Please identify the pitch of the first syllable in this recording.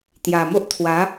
low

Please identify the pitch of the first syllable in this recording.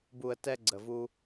low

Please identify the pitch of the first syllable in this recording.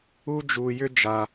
high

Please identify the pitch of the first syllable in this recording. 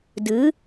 rising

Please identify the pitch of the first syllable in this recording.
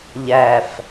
low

